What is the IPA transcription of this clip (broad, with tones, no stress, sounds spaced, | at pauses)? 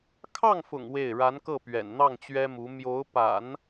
kʰ ɑ˥˩ ŋ f ʊ̰˨˩ ŋ w e˥˩ ɪ̯ ɻ a˧˥ n k ɤ˥˩ p ɥ ɛ̰˨˩ n n̪ ɑ˥˩ ŋ t͡ɕ ɥ ɛ˥ m u˧˥ m j o˧˥ ʊ̯ p a̰˨˩˦ n